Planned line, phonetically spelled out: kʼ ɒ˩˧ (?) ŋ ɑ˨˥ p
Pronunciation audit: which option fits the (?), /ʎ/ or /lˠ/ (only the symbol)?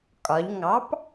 ʎ